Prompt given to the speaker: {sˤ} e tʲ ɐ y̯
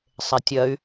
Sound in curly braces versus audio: correct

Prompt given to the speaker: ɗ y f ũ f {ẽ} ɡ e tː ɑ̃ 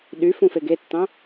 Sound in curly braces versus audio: incorrect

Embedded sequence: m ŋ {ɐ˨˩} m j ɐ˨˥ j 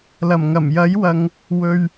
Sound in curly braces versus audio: correct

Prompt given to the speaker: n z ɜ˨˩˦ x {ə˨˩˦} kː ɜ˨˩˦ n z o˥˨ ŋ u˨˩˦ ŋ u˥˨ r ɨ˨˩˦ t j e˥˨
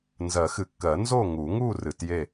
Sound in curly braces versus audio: incorrect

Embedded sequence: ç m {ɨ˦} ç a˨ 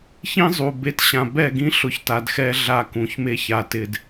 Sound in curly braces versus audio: incorrect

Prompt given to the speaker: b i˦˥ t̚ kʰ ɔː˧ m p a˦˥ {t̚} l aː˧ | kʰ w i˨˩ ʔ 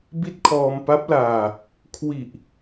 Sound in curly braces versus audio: incorrect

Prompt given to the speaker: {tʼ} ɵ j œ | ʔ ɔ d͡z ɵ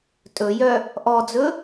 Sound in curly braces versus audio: correct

